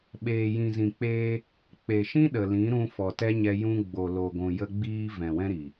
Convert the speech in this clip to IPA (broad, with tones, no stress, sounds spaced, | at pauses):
ɓ eː˨ j ĩ˨ z ĩ˨ k͡p eː˧ | k͡p e˨ ʃ ĩ˦ ɗ ə˨ l ĩ˨˦ ɾ ũ˧ f ɔ˨ t ɛ˦ ɲ ɛ˧ j ũ˧ ɡ͡b o˨ l o˨ ɡʷ ũ˨ j ə˧ ɡ͡b iː˧ v ɛ̃˨ w ɛ̃˦ ɾ iː˨